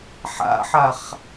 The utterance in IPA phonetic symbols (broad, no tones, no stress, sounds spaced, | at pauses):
ħ a̰ ħ a χ